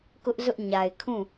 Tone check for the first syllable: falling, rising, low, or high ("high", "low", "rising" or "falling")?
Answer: high